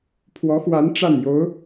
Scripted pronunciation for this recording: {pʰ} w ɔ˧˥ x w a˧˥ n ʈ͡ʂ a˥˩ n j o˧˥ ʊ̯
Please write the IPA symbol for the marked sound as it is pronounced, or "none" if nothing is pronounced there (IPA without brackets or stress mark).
pʰ